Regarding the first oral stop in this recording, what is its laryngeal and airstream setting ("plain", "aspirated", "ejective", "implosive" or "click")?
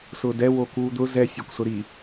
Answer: plain